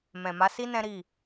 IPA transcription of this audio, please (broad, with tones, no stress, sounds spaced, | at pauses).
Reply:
m ɛ̃˨ m a˨˦ s i˦ n ɛ̃˦ ɾ i˦˨